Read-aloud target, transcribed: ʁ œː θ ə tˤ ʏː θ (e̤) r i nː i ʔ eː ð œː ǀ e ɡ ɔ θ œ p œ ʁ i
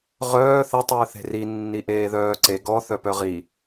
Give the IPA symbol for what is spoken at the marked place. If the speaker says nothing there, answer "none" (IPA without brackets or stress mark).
e̤